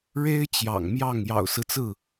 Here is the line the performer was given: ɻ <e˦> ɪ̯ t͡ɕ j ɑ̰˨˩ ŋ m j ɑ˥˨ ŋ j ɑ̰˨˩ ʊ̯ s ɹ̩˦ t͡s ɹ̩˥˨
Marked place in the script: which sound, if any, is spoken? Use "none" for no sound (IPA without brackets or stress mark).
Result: e˦